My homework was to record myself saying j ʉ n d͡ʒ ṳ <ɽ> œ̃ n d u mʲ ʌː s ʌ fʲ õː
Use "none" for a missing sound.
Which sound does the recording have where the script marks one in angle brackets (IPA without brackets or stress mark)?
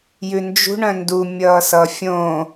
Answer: ɳ